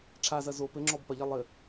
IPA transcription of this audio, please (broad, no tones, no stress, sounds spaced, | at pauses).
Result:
ʈ͡ʂʰ a z ɐ z o p ɘ ŋ͡ǁ ɔ b p ɐ ʎ ɐ lˠ ɘ